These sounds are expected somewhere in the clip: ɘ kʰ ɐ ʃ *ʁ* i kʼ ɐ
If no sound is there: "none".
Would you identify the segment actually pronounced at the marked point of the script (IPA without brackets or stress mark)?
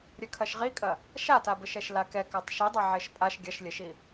ʁ